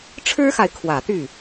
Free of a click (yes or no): yes